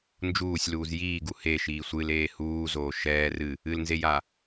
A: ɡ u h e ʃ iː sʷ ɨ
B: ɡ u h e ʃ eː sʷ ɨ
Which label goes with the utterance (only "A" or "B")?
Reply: A